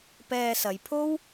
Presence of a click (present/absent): absent